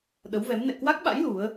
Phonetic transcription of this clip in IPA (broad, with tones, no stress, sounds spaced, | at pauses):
ɗ ə˨˦ w v ɛ˨˦ m n ɛ̰˧˨ k w a˦˥ k̚ ɓ a̰˧˥ j l u˨˦ ə̯